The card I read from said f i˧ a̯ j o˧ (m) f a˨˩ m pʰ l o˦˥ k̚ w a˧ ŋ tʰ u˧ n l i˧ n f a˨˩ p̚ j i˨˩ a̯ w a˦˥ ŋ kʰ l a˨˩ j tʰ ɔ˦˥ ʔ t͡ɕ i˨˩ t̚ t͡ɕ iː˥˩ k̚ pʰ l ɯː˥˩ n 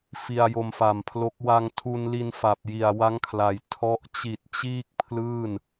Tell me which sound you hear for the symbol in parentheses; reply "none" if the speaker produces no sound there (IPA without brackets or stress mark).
m